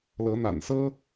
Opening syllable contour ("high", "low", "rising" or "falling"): rising